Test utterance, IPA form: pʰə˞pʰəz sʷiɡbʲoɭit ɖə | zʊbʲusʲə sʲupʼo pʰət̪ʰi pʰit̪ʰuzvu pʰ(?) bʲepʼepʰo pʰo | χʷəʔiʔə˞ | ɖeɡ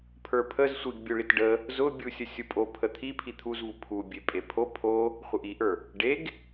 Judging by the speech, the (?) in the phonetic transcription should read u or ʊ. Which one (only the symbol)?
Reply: u